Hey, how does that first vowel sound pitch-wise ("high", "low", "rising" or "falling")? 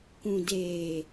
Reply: low